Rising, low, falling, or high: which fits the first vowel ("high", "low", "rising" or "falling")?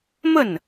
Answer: falling